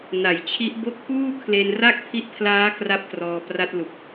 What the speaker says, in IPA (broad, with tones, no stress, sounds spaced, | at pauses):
n a˩˦ j t͡ɕʰ i˦˥ ʔ b o˥˩ k̚ p uː˥˩ kʰ l e˧ n r a˥˩ k̚ pʰ i˦˥ ʔ pʰ l aː˦˥ k r a˥˩ p̚ t r ɔː˧ p r a˦˥ t̚ l u˨˩ k̚